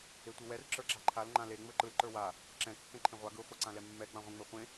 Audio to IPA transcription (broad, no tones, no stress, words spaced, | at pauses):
etʷɯwɛr ǁə˞ǁa̤ǃʰal ŋ͡ǃãle ŋ͡mə˞ǃɯl ǃə˞wa | ǁɛ̃ kːɛ̃ǃʰẽʁʷa ɡɯ χʷeǀãlɛmːɛ ɡ͡bãʁʷẽŋ͡mɛχʷẽ